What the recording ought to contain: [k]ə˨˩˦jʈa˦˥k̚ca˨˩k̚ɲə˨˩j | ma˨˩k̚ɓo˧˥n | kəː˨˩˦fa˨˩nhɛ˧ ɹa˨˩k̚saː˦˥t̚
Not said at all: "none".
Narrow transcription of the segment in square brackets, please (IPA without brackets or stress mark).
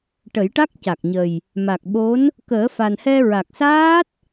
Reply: ʈ